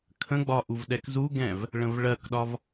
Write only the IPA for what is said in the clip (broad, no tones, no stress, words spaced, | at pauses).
kʰə̃ɡ͡bɒ ʔuvɗɛkzuɡɛ̃v | ɭə̃vɭɜkɗɒv